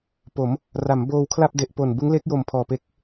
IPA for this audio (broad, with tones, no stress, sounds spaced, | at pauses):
p o˩˦ m | r a˩˦ m b oː˧ w kʰ l a˥˩ p̚ d e˨˩ ʔ p o˨˩ n b ɯ˦˥ ŋ l e˦˥ k̚ j o˨˩ m pʰ ɔː˨˩ p e˦˥ k̚